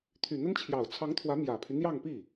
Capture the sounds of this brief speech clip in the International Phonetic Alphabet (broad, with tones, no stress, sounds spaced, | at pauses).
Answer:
t̪ʰ y˨˩ n̪ ə˥ n t͡ɕʰ j ɑ˨˩ ʊ̯ t͡sʰ ɑ˧˥ ŋ t̪ʰ w ä˧˥ m j ä˨˩ pʰ y˦ n̪ j ɑ˥˧ ŋ p i˥˩